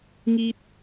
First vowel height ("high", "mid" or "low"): high